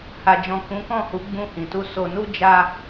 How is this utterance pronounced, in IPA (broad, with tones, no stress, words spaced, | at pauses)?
ha˨d͡ʒɔ̃˨ kũ˨˦kɔ̃˦˨hu˨˦ ɡ͡bũ˧hĩ˨tu˧ so˨nu˧ d͡ʒa˧